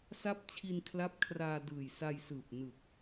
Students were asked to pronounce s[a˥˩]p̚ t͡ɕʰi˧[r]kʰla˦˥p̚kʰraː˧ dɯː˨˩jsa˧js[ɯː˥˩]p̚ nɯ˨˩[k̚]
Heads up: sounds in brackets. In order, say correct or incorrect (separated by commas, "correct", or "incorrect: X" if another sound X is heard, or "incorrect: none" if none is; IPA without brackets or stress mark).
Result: correct, incorrect: n, incorrect: ɯː˨˩, correct